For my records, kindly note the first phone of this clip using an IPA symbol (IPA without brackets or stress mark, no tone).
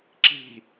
ǁ